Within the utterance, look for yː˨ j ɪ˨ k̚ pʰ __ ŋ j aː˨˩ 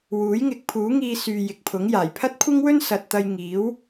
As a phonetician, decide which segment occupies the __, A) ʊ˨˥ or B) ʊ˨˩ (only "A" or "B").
A